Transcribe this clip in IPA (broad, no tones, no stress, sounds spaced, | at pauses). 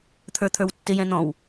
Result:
t̪ʰ ə˞ t̪ʰ ə˞ w tː ɪ j ɛ̃ n̪ ɔ̃ w